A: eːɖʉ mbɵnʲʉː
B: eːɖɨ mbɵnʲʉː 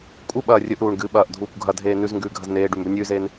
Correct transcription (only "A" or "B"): A